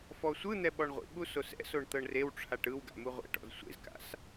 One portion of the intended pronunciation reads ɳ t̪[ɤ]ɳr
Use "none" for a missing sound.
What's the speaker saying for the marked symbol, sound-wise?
ɤ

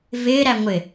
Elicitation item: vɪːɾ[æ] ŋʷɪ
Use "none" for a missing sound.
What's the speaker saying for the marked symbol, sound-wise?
æ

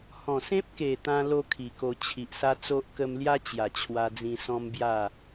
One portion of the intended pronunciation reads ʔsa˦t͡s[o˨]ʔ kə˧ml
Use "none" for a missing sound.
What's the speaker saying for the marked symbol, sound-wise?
o˦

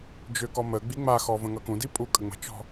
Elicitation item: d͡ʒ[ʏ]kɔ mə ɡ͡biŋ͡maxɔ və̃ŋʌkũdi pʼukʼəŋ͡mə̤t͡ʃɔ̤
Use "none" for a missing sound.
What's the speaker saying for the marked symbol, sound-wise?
ʏ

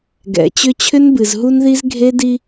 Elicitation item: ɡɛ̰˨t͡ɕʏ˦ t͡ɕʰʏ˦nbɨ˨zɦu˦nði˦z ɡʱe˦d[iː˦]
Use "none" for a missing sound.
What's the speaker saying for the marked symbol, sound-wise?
i˦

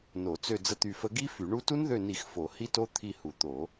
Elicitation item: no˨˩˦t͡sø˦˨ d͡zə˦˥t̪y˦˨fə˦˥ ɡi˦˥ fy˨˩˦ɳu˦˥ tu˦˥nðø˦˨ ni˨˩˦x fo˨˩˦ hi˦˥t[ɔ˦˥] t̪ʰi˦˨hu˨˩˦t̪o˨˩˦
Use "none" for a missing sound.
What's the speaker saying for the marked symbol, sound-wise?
o˦˥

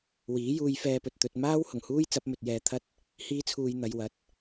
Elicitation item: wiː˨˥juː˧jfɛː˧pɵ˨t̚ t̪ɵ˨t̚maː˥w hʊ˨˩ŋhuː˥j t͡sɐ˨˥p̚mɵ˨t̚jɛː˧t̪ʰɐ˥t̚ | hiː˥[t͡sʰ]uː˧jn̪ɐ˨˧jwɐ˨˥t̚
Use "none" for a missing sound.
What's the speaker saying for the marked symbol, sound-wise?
t͡sʰ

